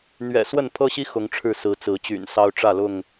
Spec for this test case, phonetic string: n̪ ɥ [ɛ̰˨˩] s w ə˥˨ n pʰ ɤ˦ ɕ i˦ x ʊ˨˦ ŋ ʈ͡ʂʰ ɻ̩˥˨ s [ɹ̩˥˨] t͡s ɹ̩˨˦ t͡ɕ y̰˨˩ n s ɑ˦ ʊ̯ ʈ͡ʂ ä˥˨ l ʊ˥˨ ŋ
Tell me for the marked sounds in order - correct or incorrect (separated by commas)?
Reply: correct, incorrect